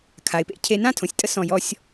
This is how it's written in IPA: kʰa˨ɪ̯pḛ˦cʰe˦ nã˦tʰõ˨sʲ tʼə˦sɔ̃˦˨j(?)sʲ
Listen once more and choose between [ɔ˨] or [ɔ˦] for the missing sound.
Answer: ɔ˦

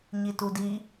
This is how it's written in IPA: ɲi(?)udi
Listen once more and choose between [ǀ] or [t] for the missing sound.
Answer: t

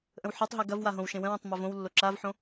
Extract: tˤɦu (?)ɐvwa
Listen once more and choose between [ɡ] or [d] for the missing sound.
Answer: ɡ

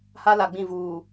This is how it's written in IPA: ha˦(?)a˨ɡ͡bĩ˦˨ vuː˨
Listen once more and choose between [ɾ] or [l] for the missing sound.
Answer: l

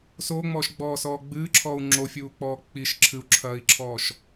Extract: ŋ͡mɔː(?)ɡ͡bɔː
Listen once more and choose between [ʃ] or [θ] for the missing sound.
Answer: ʃ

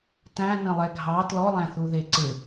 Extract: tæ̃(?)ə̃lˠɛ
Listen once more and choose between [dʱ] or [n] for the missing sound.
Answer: n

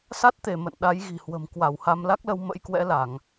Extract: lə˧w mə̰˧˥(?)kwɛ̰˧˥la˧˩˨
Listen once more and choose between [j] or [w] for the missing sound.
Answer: j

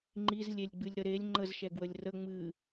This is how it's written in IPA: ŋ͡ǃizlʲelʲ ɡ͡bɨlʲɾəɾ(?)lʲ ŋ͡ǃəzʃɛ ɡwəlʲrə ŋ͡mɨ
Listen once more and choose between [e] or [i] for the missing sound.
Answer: e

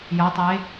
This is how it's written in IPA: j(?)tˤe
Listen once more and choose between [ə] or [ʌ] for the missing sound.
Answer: ʌ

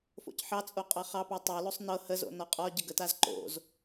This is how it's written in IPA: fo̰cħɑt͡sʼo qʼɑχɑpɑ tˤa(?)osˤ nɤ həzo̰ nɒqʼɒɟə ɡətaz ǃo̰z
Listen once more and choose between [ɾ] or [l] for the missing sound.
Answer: l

